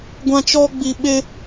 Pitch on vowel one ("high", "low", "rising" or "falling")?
high